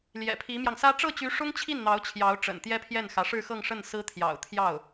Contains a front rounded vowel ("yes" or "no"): yes